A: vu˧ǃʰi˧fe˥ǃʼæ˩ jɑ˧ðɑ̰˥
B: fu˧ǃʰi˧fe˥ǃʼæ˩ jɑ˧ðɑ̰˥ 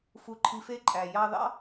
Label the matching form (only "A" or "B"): B